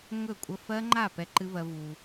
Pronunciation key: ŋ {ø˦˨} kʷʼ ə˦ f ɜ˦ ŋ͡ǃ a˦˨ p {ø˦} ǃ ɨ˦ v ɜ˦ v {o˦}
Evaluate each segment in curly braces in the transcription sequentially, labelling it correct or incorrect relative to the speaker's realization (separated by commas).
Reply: incorrect, incorrect, incorrect